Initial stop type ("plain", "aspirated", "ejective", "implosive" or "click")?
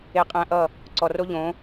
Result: ejective